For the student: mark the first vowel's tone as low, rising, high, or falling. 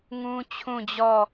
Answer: high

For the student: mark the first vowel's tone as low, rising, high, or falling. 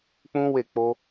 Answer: high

